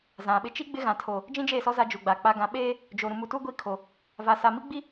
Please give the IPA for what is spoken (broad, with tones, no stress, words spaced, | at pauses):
zã˨ɓɪ˦ t͡ʃi˦ ɡ͡bɪ˦ɣã˨ tʰo˨ | d͡ʒĩ˦d͡ʒeː˦˨sɔ˦ za˦d͡ʒu˨ɡ͡ba˨ k͡pa˨ɡã˨ɓeː˦ | d͡ʒo˨ ɾũ˨mu˨tu˦ ɡʷi˦˨kʰo˨ | va˨sa˨mi˦ ɡ͡bi˦